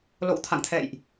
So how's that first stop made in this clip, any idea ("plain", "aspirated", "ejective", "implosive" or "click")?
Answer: aspirated